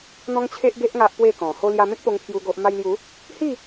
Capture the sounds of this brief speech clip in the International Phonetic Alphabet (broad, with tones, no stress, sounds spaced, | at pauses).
n̪ ɔ̃˦ ŋ t͡ɕʰ e˦ ʔ ɡ e˦ ʔ ŋ a˦ ʔ p w e˥˧ k ɔ̃˨˩ h o˧ l j a˧ m ẽ˦ k̚ p o˧ ŋ pʰ j u˦ ɡ o˦ ʔ m a˧ j l j u˨˦ | h i˥˧